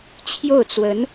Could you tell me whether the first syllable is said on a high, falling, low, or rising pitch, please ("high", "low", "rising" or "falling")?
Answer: falling